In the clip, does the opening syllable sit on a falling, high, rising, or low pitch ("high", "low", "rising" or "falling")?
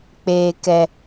low